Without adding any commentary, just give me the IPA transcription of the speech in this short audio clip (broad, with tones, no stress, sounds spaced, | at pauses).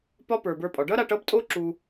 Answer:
p ɒ˦ p ə˞˨ b ə˞˧ pʼ ɒ˨ ɖ ʌ˦ ɾ a˧ ʈ ʌ˦ b tʼ o˦ ǁ u˧